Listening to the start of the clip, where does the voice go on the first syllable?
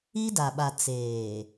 high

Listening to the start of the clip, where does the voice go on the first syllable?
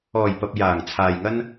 low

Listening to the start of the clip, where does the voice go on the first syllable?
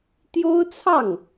high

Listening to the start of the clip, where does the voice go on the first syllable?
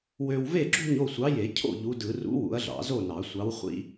low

